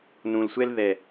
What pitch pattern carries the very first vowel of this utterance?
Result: low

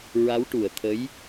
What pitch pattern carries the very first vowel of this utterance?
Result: rising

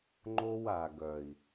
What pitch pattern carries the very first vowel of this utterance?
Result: high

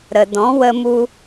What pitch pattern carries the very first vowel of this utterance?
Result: low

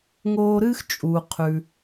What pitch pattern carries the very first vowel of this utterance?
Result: high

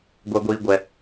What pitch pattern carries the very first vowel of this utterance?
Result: low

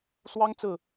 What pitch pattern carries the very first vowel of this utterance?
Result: high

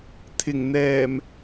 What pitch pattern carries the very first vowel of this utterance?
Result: low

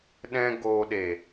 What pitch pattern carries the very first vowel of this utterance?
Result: high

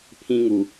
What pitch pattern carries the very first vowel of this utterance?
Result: high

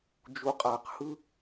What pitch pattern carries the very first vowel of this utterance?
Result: low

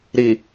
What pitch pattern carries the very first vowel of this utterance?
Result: low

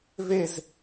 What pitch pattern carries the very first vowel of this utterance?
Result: falling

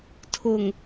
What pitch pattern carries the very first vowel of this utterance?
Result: low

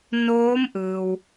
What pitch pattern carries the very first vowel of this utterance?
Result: rising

